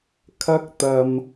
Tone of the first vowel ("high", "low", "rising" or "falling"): high